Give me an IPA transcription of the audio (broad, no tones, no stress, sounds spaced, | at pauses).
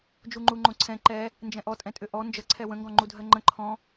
d͡ʒ u ŋ͡ǃ u ŋ͡ǃ õ ǀʰ ɛ̃ ǃ ɛ | n d͡ʒ ɛ̃ ʔ ɔ tʼ ɛ̃ tʼ ʏ ʔ ɔ n d͡ʒ ə ǀʰ ɛ w ə̃ ŋ ɡ ɔ̃ ŋ͡ǃ u dʱ ɜ ŋ͡ǃ ə̃ ǃʰ ɔ̃